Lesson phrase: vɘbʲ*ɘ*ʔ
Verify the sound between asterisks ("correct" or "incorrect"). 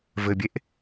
incorrect